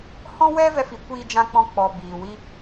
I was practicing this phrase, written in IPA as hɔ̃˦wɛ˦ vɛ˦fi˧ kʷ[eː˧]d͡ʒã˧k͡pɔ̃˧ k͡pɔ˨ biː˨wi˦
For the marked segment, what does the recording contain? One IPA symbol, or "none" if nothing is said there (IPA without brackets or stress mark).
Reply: iː˧